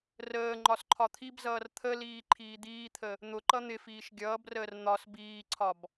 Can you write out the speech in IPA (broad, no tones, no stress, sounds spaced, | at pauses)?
r əː ŋ͡ǃ ɒ s ǃʰ ɒ t̪ʰ i b z ʌː r t̪ʰ ə l iː ǃʰ iː d̪ iː t̪ʰ ə | n̪ ʊ ǃ ʌ n̪ ɪ f iː ʃ ɡʲ ʌː b r əː r n̪ ɒ s b iː ǀʰ ɒ b